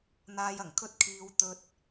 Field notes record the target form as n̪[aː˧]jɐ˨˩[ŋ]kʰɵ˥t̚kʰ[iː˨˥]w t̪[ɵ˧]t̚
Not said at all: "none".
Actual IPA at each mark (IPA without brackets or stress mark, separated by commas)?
aː˧, ŋ, iː˧, ɵ˧